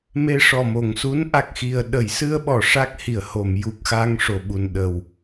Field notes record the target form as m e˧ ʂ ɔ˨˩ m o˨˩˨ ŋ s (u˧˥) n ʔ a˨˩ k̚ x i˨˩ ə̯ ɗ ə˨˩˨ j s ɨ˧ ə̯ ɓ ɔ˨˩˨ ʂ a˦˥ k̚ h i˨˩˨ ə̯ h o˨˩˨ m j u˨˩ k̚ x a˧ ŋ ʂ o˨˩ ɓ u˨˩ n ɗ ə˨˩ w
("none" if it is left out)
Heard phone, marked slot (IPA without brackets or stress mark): u˧˥